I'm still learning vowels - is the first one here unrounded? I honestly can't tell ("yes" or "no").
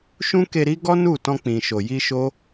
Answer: no